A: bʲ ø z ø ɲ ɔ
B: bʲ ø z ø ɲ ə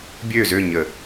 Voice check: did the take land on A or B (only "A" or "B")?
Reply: B